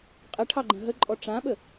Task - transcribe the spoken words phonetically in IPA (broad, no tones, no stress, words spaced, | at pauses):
qʼəʈʰɑɡ͡ǃə̃ ɦəǃʼɔ ʈ͡ʂãɓə